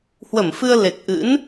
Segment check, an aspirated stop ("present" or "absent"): absent